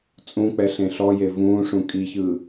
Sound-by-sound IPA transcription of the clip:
t͡sʼ ũ k͡p ɛ ɬ ẽ ɬ ɔ j e v ũː ʂ ũ kʼ i ç ɯː

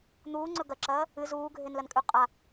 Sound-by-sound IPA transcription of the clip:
n̪ uː ŋ͡ǀ ɵ ɡ ɐ ǁ ɐː | ɨ z uː ɡʱ e n l ɐ n kʼ ʉ qʼ a

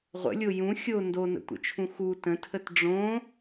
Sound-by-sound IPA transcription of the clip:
ʁʷ ə̰ lʲ o j ũ xʲ o n d o n ə̰ tʷ ə̰ t͡ʃʰ ũ x u t ə̃ tʰ ə t ɖ͡ʐ õ

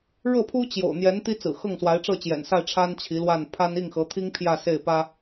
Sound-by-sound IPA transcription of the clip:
ɻ ɤ˥˩ pʰ u˥ t͡ɕ j o̰˨˩ ʊ̯ n̪ j ɛ˧˥ n t̪ i˥ t͡s ɹ̩˨˩ x ɤ˥˩ ŋ s w a˧˥ ɪ̯ ʈ͡ʂ ɤ˥˩ t͡ɕ j ɛ̰˨˩ n s a˥˩ ɪ̯ ʈ͡ʂʰ a˥ n t͡ɕʰ i˧˥ l w a˥˩ n pʰ a˥ n i˥˩ ŋ x ɤ˧˥ t̪ʰ i˥ ŋ pʰ j ä˥˧ s e˥˩ ɪ̯ p ä˥

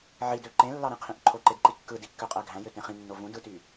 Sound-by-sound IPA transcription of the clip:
ʕ i d ø ǃ ẽ lː ɑ ɾ ẽ qʰ ĩ ʔ ǃʰ o ǃ e d ǃ i kː ɯ d i kː ø qʼ æ ɡʱ æ̃ j ø t ẽ χ ĩ nː o v ũ d ɯ t y

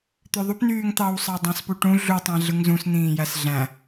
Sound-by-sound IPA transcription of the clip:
t̪ ø ðˤ u p n yː ŋ t̪ ɑ w sˤ ɑ dˤ ɑ̃ s p u ʈ ũ ɮ u tˤ æ̃ ɮ ɯ ŋ z ũ s n̪ ĩː j æ s ɮ æ̃

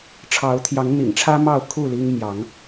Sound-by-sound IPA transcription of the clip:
ʈ͡ʂʰ ɑ˨˦ ʊ̯ t̪ʰ j ɑ˨˦ ŋ n̪ ḭ˨˩ ŋ ʈ͡ʂʰ ä˦ m ɑ˥˨ ʊ̯ kʰ u˥˨ l i˦ ŋ m j ɑ˨˦ ŋ

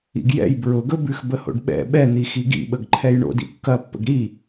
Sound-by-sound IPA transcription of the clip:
ḭ ɡ j ɛ̰ j b ɹ ʊ ɡ ɵ b ʉ x b ə h o̰ ɖ ɓ ɛ̰ ɓ ɛ n̪ i x i ɡ ḭ ɓ ə ɡ ǃʰ ɛ j ɳ o̰ d ḭ kː ɐ pː ə̰ ɡ ɾ i

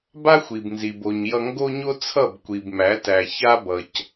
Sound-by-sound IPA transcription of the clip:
b a˦ xʷ i˨ b n z i˨ b o˨ ɲ j ʌ˧ ŋ ɡ o˦ ɲ o˦ t͡sʰ ʌ˦˨ b kʷ i˨ b m æ˨˦ t æ˨ ç a˦ b ʌ˨ c

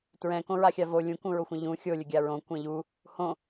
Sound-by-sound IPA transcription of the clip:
t ɹ ɛ̃ k õ ɹ a xʲ a v o lʲ ũ k ũ ɹ o xʷ ə̃ ʎ ũ xʲ o lʲ ə ɡʲ a ɹ õ kʷ ɛ̃ ʎ u | h õ

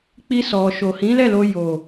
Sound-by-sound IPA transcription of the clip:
k͡p i˧ s ɔ˨ ʃ o˨ h ĩ˨˦ l ɛ˦˨ l o˧ j o˨

